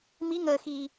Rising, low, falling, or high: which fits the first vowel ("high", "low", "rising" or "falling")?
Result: rising